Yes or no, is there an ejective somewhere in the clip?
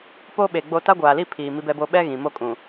yes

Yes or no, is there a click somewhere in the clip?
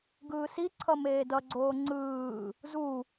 yes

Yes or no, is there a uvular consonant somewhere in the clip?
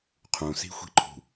yes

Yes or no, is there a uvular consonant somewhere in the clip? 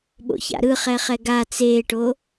yes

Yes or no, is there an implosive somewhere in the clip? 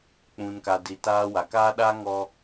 yes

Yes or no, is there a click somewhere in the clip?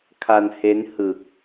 no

